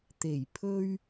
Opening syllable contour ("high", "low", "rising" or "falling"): low